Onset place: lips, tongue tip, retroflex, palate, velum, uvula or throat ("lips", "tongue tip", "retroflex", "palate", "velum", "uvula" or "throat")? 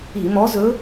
lips